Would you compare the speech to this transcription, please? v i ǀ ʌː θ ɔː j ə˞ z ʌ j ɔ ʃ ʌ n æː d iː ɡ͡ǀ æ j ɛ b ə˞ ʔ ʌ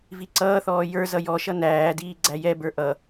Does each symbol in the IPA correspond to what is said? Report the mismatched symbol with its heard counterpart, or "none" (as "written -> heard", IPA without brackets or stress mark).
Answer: none